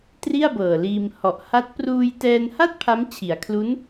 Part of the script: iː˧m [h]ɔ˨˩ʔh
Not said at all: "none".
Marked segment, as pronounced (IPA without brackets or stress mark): h